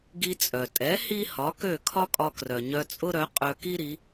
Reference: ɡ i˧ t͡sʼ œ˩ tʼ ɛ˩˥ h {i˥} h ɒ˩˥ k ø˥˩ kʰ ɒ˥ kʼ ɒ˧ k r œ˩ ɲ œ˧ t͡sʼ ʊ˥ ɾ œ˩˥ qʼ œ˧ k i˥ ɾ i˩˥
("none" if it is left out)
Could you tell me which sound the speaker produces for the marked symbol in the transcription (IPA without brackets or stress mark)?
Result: i˥